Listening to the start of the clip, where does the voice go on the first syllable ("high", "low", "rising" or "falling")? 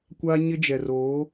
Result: high